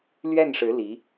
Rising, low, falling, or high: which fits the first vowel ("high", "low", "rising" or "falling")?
falling